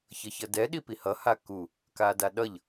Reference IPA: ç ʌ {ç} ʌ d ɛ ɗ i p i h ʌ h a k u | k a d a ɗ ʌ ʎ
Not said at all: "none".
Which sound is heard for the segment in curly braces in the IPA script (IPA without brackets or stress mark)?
ç